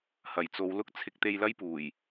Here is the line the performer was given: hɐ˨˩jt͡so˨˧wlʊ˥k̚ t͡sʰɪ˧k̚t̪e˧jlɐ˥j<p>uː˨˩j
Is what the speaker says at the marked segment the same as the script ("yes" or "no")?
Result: yes